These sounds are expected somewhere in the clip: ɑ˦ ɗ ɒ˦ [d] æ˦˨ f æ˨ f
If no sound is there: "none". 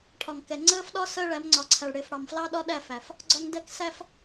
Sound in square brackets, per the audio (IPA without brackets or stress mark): ɗ